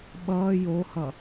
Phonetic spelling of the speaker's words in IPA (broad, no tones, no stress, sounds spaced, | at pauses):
ɓ ʌː j o h ʌ